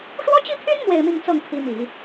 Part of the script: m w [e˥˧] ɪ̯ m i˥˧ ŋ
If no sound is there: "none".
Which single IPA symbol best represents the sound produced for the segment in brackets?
e˥˧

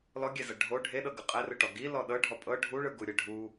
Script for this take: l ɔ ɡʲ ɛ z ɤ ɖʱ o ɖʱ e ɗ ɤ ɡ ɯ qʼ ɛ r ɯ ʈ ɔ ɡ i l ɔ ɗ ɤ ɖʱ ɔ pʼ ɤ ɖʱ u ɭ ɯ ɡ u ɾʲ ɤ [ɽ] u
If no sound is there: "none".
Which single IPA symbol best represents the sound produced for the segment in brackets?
ɖʱ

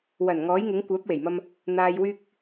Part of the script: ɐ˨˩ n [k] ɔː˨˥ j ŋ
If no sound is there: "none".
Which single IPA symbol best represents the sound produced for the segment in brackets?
ŋ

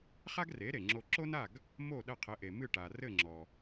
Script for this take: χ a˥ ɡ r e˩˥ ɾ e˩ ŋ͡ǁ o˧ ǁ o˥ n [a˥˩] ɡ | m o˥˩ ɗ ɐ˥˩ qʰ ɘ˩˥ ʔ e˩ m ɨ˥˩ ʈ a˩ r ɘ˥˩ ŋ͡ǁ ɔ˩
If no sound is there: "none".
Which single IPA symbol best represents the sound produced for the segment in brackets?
a˥˩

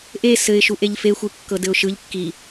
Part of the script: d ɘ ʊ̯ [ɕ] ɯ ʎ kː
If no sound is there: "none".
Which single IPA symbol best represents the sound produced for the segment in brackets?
ʃ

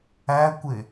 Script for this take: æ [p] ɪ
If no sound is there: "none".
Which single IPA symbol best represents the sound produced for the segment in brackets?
kʷ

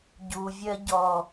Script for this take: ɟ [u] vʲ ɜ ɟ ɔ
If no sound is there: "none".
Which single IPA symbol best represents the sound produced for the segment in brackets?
u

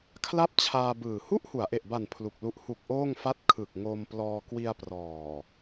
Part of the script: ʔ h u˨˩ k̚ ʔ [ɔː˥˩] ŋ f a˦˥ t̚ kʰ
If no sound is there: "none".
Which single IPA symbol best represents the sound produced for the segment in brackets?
oː˥˩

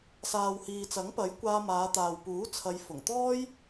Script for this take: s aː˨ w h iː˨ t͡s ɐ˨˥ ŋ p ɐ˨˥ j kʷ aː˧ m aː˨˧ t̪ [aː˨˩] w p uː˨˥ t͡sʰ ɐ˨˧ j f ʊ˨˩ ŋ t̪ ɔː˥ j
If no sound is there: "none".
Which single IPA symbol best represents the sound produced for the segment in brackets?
aː˨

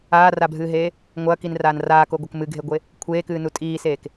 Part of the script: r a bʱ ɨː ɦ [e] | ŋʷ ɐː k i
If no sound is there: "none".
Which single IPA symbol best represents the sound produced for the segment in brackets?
eː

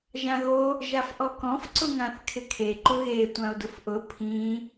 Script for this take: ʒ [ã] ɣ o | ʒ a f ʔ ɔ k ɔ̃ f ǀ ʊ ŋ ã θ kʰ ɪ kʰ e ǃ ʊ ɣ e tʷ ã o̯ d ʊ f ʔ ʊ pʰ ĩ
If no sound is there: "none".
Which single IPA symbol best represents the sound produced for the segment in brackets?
ã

